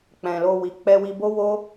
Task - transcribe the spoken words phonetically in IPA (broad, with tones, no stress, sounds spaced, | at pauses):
k͡p ɛ̃˨ l o˧ w i˨ k͡p ɛ˧ w i˧ b o˦ w o˦